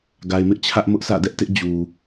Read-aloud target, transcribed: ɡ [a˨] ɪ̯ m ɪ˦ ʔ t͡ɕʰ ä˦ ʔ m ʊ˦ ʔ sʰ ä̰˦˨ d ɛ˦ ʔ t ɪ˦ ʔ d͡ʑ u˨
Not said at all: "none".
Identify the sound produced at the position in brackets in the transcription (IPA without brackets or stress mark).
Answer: a˨